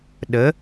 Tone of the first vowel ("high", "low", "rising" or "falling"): rising